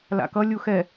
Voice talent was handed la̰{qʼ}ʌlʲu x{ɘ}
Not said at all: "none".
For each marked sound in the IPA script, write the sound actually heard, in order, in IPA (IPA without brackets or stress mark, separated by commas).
k, ɛ